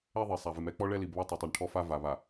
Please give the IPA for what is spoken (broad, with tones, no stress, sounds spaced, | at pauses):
ɛ˦ ðˤ i˨ sˤ a˨ v ɪ˨ m ɛ˦ k͡p ɔ˦ ɭ ɛ˦ l i˨ b β ɔ˦ tˤ ɛ˨ tˤ i˨ ɳ ʈʰ ɔ˦ f a˦ v a˨ β a˨